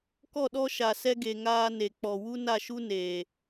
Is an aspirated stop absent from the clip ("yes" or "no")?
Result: yes